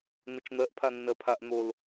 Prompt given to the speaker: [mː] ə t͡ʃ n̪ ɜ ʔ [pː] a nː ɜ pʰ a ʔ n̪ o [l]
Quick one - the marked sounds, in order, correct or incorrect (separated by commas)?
incorrect, incorrect, correct